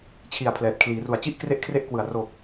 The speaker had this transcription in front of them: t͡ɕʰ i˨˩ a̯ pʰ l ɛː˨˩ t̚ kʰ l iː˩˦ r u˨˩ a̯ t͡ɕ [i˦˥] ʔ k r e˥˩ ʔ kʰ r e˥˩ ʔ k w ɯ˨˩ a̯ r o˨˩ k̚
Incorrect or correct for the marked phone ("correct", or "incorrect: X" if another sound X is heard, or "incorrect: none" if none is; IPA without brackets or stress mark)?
incorrect: i˥˩